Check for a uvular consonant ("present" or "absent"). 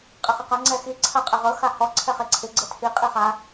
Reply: present